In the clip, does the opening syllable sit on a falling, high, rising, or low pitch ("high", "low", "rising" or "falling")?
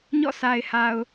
falling